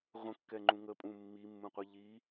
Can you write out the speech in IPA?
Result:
ʁʷə̃kːɛŋ͡ǃũ ŋəpʼũ mːimːũqʷi ʎi

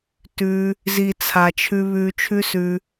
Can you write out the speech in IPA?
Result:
tʉ˧ | zi˨t͡sʰa˨t͡ʃʰʉ˧ βʉː˧t͡ʃʰʉ˦sʉ˧

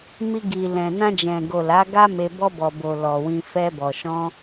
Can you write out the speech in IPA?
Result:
mi˧ɡi˨ lɛ̃˨nã˧d͡ʒɛ̃˨ɡo˨ la˨˦ɡa˦me˧ bɔ˧bɔ˨bo˨ lɔ˨wĩ˧ fɛ˧bɔ˨ ʃɔ̃˧

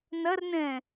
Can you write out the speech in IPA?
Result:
nɐrnɛ̃

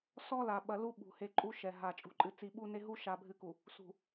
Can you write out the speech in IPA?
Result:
sɔ˦la˨ɓɐ˨ lu˦ɓṳ˨ he˨ ǃʼu˦ʃɛ˨ɦa˨ t͡ʃʼṳ˨ǃʼɨ˨ t͡si˨ɓu˦ne˦ɦu˦ ʃa˨bʱɨ˨ku˨ | sṳ˨

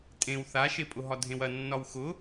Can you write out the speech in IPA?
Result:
tʼẽw θaʃepʼʊɦɒ dʱẽwɐnːɒw xʊ

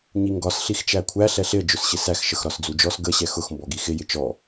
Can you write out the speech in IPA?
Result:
ɲiŋɡɒs ɬixt͡ʃækʷʰæ ɬɛɬɪə̯ d͡ʒʊsɕɪsæx ʃəxɾɒsd͡zud͡ʒɔs ɡə ɕɛxʊx mbɔɡixɪ jɪt͡ʃɔ

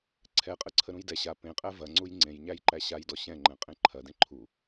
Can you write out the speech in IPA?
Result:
ǀʰɛqʼəǀʰə ɾũjdɛ ɕa pẽqʼæ vɐŋ͡ǀuj ŋ͡ǀẽj ɲæjǃæɕajdɔ ɕɛ̃ŋ͡ǃɛ̃ qʼẽǃʰɐ dẽǃʰu

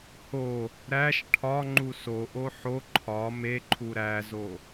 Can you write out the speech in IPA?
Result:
ho | ɾæʃ ʈʰɒ ŋ͡ǃusoʔo ħo ǃʰɒ meǃʰu ɾæzo

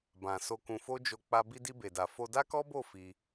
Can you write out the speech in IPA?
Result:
bã˨ so˧kũ˧fo˦ d͡ʒo˧k͡pa˧ bi˧di˧be˨da˨ fo˧da˦kɔ˦bo˦˨ fi˧

